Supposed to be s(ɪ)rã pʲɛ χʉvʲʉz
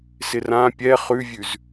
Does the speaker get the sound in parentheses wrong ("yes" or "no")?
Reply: no